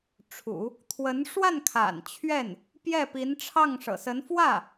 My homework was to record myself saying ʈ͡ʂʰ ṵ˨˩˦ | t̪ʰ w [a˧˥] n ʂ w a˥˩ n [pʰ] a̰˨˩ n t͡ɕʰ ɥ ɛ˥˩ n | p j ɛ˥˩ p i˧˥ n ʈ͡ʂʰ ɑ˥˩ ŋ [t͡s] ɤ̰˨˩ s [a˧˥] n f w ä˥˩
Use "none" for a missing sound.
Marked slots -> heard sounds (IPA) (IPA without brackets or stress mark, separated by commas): ə˧˥, kʰ, ʂ, ə˧˥